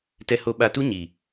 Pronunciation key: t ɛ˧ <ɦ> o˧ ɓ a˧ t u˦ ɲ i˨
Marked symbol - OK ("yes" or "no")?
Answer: no